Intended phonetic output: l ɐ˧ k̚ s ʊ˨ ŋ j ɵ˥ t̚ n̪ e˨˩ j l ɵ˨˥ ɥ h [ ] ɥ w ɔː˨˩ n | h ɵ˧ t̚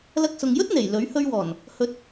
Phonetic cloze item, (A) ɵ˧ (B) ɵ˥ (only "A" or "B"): A